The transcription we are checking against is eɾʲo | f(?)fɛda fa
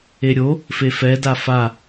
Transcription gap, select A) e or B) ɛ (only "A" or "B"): A